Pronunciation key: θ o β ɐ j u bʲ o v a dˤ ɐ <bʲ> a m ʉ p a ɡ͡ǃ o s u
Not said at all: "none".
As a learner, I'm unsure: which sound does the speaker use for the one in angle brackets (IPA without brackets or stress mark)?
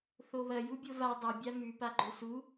bʲ